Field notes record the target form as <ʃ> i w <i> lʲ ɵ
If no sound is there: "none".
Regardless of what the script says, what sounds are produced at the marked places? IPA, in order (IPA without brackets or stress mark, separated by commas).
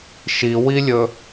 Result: ʃ, i